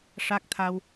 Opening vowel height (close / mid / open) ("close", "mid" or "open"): open